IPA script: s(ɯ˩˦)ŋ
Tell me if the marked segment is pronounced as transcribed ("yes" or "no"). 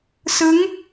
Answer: no